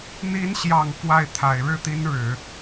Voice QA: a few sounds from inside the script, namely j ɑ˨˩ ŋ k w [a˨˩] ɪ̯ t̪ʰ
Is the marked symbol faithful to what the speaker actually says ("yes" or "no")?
no